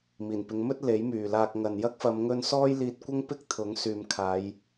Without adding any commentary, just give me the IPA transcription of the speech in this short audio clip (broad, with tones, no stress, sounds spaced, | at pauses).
m iː˨˩ n p ɪ˨˧ ŋ m ɵ˥ t̚ l e˨˥ j m yː˨ l aː˧ k̚ ŋ ɐ˨ n j ɐ˥ k̚ f ɐ˨˧ m ŋ ɵ˧ n s ɔː˥ j l iː˧ t̚ kʷ ɐ˥ ŋ p ɪ˥ k̚ t̪ʰ ʊ˨˥ ŋ s yː˨ m kʰ aː˨˧ j